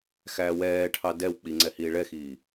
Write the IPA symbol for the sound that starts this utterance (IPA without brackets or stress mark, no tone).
x